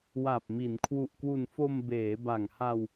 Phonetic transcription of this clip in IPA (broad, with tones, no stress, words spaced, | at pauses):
wa˨˩p̚mi˩˦n kʰwu˨˩ʔkwu˨˩n fo˧mbeː˩˦ba˨˩ŋha˧w